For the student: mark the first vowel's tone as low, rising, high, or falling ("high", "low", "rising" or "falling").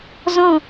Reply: falling